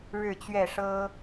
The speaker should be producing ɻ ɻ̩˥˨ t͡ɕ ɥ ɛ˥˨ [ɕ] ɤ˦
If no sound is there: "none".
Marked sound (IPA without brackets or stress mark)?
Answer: ʂ